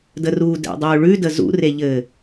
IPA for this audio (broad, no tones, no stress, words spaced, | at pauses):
dəruːdɛ̰dˤuː ɭʉdə zṵreʎɘː